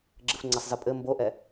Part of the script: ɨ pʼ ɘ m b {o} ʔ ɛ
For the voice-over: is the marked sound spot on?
yes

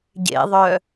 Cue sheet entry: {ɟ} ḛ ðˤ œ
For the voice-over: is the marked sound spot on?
yes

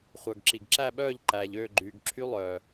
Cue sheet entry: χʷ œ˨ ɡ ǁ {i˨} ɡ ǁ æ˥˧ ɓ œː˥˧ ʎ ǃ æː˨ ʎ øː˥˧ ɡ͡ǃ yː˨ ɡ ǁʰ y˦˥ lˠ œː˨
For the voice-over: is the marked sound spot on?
yes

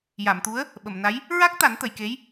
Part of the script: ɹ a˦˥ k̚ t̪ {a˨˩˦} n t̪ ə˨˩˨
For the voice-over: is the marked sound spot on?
yes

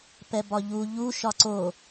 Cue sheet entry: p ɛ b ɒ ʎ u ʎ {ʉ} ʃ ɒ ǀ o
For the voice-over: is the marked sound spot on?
no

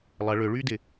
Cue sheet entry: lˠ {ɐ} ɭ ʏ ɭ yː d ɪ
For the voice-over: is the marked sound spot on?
yes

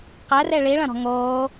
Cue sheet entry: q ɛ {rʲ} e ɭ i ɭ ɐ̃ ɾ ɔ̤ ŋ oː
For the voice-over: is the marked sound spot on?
no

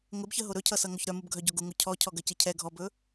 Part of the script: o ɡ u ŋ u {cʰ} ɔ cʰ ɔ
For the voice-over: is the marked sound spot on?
yes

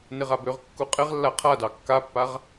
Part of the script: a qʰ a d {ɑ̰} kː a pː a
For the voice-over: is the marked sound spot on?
no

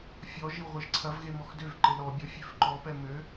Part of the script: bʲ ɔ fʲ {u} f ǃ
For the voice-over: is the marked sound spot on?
no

